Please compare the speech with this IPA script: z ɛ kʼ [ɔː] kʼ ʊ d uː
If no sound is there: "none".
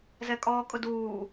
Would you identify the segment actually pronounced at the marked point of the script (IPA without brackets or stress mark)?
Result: ɔː